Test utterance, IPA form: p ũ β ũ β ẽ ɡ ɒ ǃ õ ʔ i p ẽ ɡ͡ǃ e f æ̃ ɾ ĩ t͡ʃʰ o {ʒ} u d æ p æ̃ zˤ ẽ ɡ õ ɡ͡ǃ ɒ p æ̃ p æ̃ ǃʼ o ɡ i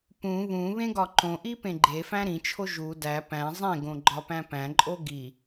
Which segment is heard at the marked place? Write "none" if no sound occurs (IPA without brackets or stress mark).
ʒ